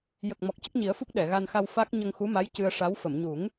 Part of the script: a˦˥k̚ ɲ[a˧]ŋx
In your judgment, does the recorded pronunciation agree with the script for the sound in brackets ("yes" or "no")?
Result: no